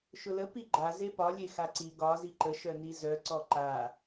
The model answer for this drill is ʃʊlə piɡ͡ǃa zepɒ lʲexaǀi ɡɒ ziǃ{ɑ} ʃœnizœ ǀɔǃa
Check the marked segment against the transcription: incorrect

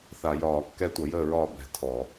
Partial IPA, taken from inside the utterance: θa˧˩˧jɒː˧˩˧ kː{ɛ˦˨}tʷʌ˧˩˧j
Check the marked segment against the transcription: correct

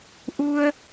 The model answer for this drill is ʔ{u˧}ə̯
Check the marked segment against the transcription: correct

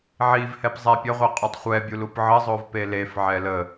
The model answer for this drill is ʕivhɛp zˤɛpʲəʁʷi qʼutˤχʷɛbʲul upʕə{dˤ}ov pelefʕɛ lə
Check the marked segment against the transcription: incorrect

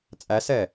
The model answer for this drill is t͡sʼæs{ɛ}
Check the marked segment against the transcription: correct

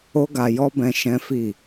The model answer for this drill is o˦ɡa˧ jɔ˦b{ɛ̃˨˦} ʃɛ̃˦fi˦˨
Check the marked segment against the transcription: incorrect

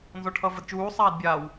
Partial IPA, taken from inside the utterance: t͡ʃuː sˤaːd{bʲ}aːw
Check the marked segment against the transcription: correct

